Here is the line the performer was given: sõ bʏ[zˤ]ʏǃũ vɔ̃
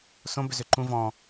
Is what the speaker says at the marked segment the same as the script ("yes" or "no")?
no